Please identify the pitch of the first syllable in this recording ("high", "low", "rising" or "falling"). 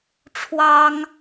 high